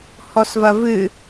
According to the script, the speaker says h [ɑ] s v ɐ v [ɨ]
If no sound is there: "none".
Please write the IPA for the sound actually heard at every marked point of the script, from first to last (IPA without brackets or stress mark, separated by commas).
ɔ, ɨ